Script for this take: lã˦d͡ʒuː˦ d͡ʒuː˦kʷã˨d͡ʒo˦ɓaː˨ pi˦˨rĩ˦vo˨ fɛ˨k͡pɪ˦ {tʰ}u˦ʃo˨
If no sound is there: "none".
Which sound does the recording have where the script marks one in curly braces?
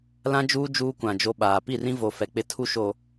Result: tʰ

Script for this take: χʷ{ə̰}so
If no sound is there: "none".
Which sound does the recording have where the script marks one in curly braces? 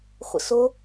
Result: ə̰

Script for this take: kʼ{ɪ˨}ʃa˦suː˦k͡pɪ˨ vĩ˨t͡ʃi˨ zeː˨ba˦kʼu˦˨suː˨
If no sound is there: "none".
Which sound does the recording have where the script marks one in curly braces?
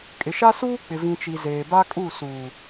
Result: ɪ˨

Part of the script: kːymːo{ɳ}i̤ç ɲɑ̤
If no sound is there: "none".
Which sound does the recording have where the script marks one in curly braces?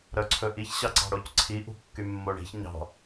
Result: ɳ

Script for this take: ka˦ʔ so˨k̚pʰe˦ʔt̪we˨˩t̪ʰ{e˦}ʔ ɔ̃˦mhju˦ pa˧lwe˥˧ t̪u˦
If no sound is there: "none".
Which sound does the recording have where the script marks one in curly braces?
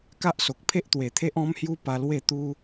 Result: e˦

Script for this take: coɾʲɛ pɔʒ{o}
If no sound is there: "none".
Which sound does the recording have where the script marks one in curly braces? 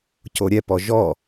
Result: ɔ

